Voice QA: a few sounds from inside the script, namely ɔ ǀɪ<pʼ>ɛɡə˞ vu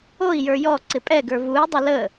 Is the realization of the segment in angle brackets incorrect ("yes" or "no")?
no